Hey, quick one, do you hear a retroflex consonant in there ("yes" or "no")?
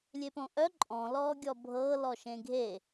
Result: no